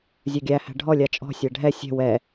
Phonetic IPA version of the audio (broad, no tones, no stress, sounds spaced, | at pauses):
zʲ œ ɡʲ æ h æ̤ ɖʱ ɔ lʲ a t͡ʃʼ ɔ̤ sʲ æ ɖʱ ɛ sʲ ɛ̤ w ɛ